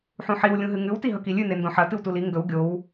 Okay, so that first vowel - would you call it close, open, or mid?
close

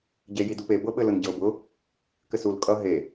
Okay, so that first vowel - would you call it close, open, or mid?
mid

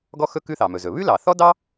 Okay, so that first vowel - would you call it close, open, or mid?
mid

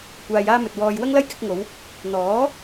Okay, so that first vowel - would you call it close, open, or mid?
open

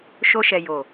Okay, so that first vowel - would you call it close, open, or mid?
mid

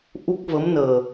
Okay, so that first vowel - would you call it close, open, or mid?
close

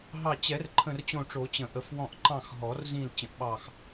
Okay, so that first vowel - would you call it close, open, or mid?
open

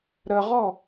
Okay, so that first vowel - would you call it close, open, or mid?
mid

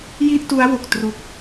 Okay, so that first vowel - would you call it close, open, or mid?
close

